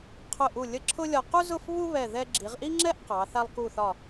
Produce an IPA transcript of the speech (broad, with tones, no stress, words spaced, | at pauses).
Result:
qʰʊ˧˩ʔu˧˩ lʲə˥˧ǁʰʊ˥lʲɒ˧ qu˥zʊ˥˧f βu˥βɛ˧˩ ðɛ˧ ɡ͡ǁi˩˧ʁʔi˥ŋ͡ǁɛ˥ʔ qɑ˩˧ θa˧lˠku˧˩θɒ˧˩